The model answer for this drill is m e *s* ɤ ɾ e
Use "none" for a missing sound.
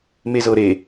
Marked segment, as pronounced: z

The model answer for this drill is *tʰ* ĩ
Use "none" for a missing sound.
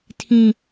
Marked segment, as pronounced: tʰ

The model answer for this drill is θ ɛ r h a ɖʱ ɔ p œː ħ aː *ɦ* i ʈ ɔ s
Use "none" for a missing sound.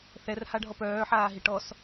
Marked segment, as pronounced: ɦ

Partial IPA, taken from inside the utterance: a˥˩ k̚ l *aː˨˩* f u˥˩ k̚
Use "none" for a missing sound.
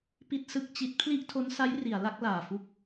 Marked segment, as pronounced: aː˨˩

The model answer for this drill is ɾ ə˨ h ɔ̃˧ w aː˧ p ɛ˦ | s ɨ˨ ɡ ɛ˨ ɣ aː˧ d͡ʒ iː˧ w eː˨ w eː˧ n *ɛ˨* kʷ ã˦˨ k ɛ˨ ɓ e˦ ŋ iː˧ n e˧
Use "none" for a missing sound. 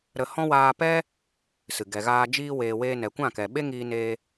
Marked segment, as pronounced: ɛ˨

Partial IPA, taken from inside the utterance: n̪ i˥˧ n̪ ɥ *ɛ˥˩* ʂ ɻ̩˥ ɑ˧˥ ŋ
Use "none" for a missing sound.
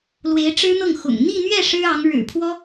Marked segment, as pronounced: ɛ˥˩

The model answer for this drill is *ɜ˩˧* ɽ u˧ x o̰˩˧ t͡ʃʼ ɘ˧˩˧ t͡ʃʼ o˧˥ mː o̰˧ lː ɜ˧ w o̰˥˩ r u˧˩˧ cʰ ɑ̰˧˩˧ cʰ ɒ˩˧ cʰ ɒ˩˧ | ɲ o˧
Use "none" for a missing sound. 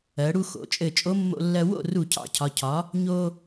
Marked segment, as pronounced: ɜ˩˧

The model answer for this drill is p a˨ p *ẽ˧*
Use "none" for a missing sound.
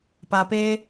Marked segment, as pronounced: e˧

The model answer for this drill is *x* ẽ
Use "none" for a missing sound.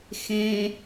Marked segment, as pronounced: x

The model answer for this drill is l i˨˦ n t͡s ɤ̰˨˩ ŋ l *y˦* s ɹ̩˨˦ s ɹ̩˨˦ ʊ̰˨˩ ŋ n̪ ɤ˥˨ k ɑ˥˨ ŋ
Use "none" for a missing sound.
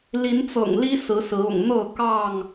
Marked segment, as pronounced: i˦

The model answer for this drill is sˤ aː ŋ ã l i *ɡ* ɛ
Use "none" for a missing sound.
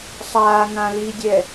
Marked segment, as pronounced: dʲ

